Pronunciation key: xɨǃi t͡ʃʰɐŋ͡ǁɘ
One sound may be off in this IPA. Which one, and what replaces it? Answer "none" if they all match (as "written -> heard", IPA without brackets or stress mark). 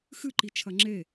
ɘ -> e